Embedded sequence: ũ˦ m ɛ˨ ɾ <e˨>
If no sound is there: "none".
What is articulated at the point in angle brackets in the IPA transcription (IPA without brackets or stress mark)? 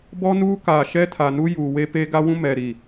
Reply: i˨